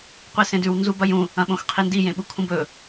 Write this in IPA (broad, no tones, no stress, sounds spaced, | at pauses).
qʷ i s ẽ d ʉ w n z u b ɐ j ũ | ɐ̃ ɓ õ x qʰ i n d i j ẽ ɓ u kʰ ũ b ɵ